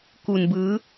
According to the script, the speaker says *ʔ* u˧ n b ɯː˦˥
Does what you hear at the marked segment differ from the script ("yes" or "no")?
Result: yes